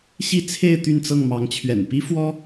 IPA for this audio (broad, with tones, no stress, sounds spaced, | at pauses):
ɕ i˥˨ t͡sʰ e˥˨ ɪ̯ t̪ y˥˨ n t͡s ɤ˥˨ ŋ m ɑ˨˦ ŋ t͡ɕʰ ɥ ɛ̰˨˩ n p i˦ f w ɔ˦